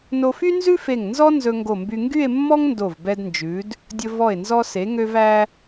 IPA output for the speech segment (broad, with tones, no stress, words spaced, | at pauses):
no˧fy˥nzʉ˥fe˧˩ŋ nzɔ˥ nzɵ˧ŋɡo˧˩mby˧ ŋɡy˥˧e̯mːɔ˥ŋ ndo˧˩vbɛ˧dnd͡ʒʉ˩˧d | dʲɵ˧ vɔ˧˩e̯nzɔ˧se˩˧ ŋø˧væ˧